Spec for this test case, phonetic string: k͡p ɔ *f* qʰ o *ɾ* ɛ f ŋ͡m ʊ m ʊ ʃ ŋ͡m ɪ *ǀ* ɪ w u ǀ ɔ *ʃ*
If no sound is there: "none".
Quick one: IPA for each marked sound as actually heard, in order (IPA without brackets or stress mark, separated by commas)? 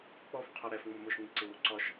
f, ɾ, ǀ, ʃ